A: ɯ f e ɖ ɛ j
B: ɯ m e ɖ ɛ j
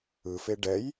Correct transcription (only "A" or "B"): A